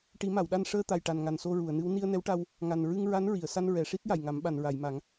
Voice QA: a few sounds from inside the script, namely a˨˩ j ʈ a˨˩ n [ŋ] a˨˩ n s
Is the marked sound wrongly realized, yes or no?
no